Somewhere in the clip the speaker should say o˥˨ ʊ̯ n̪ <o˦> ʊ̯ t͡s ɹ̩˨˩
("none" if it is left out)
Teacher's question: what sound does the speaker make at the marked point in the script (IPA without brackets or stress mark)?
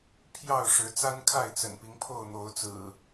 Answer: o˨˦